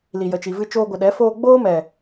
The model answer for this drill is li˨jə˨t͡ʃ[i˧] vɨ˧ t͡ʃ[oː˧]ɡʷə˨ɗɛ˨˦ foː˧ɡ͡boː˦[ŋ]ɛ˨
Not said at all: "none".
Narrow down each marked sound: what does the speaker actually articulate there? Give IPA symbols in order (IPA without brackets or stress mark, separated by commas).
i˨, oː˧, m